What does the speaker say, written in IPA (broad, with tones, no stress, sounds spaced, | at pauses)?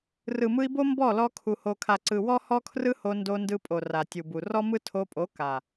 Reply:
r ɯ˨ m ɯ˧ i̯ b o˦ m b ɔ˦˨ l ɔ˧ kʰ u˨ h o˨ kʰ a˨ ǀ ɯ˨ w ɔ˦ h ɔ˦ kʰ r ɯ˦ h o˧ n d o˧ n d ɯ˧ pʼ o˨ r a˨ tʲ u˨ b u˨ r ɔ˦ m ɯ˦ tʰ o˧ pʼ o˨˦ k a˨